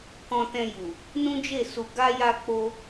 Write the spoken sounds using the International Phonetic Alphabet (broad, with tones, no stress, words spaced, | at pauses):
kɔ̃˧tɛ̃˧ju˨ | nũ˦d͡ʒe˦˨su˧ ɡa˦ja˦k͡po˦